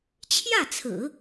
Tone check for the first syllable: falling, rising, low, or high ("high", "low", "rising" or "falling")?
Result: falling